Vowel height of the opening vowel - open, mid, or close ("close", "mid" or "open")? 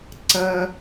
open